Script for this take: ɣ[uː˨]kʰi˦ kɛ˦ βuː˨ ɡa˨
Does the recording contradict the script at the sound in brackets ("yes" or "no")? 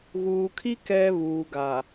no